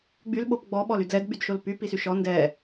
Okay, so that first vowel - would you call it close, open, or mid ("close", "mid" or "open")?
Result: close